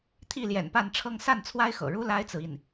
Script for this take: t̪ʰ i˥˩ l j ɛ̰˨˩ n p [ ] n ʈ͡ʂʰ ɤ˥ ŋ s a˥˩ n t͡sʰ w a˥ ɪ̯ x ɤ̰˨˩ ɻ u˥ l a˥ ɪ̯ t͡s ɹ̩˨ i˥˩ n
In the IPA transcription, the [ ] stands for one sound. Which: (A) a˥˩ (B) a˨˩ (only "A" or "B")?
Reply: A